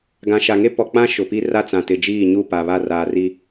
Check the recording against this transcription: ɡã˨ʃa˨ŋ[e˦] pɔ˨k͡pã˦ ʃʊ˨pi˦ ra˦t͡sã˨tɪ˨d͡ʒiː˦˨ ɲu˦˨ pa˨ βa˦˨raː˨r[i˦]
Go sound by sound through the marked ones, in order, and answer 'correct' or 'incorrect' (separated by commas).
correct, correct